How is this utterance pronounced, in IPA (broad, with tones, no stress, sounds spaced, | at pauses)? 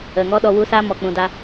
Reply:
ə˨ ŋ ɔ˦ ɗ ɔ˧ w u˧ s aː˦ m ɔ˨ k͡p ũ˨ d a˧